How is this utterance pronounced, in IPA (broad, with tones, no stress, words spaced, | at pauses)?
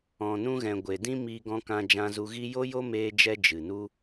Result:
ɔ̃˨nũ˧ɣɛ̃˨ ɡʷe˨ dĩ˦miː˧ɡɔ̃˧ kã˧d͡ʒã˧zu˧ɣi˦ jo˦jo˦meː˧d͡ʒɛ˧ d͡ʒɨ˨nu˦